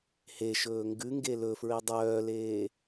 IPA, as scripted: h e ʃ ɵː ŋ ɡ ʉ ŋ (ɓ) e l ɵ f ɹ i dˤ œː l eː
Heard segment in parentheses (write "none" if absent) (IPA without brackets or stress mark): ɡ